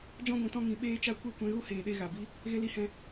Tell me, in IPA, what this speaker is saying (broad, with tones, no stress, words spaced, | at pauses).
d͡ʒɔ̃˦ɡʷĩ˨tɔ̃˦ ŋĩ˨ ɓeː˧t͡ʃa˧ kʷe˦˨kʷɛ̃˧ ɣu˦heː˨ɗe˧ ɣa˨bi˦ | ɣe˨li˨hɛ̃˨